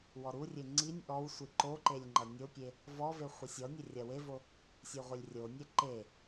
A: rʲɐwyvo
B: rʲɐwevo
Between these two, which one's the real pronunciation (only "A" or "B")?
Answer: B